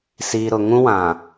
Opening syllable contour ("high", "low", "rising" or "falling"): low